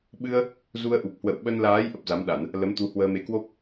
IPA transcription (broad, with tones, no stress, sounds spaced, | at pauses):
ɓ ɨ˧ ə̯ | z u˧ ə̯ ʔ u˨˩ p̚ h w ə̰˧˨ w ɓ ə˧ n l aː˨˦ j ʔ ə˦˥ p̚ z a˨˦ m ɗ a˧˩˨ n | l ə˨˦ m t̪ u˧ h w əː˧ m e˨˦ k w o˦˥ p̚